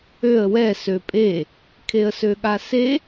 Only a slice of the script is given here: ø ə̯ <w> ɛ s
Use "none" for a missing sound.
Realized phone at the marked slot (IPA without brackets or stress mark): w